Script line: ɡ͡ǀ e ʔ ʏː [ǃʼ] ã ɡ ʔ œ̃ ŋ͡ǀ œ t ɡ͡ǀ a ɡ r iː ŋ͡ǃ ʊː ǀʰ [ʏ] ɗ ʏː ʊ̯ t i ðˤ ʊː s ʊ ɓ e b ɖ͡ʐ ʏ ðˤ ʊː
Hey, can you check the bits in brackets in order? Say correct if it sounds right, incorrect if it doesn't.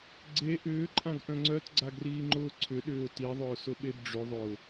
correct, correct

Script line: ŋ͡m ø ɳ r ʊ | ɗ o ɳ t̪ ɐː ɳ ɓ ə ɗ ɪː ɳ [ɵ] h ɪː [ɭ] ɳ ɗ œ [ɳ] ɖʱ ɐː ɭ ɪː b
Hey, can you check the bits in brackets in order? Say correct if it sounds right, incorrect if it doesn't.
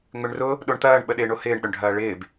incorrect: o, incorrect: none, correct

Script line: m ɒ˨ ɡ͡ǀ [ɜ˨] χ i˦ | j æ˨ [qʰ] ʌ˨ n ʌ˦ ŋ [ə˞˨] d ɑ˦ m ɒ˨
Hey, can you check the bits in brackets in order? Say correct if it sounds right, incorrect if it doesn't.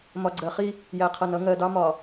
correct, correct, incorrect: ɜ˨

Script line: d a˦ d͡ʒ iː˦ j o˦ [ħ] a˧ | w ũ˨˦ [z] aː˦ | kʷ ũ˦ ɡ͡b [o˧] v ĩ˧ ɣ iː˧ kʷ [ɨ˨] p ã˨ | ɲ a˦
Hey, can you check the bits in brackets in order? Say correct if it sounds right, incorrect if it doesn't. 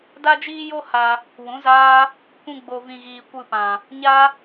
incorrect: h, correct, correct, incorrect: ɨ˧

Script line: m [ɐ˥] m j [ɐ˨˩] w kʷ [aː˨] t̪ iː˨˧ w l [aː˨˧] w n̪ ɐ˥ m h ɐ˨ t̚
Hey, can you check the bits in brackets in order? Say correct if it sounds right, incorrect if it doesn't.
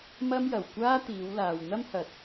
correct, correct, incorrect: aː˥, incorrect: aː˨

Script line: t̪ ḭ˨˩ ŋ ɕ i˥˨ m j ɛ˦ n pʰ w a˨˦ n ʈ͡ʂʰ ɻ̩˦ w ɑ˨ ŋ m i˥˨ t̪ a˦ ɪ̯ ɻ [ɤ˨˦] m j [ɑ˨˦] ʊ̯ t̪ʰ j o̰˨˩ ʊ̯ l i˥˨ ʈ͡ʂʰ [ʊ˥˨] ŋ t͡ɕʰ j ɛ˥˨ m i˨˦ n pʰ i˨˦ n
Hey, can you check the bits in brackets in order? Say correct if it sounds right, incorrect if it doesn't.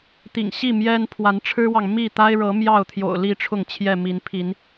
correct, incorrect: ɑ˥˨, correct

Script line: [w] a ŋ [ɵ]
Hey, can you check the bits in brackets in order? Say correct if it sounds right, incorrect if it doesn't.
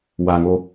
correct, incorrect: o

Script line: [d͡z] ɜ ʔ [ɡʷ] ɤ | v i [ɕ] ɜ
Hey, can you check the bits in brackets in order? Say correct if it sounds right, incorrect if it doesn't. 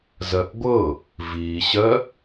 incorrect: z, correct, correct

